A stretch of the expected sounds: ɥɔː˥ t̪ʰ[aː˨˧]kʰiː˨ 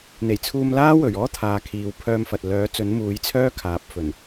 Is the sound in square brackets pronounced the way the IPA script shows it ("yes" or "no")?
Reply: yes